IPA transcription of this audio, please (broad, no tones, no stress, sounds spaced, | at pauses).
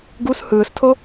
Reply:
ɡ u s h ɯː s tʰ o